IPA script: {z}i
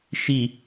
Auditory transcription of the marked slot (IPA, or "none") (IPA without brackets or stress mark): ʃ